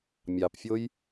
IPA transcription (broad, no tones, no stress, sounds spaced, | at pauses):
mʲ ɑ p fʲ o j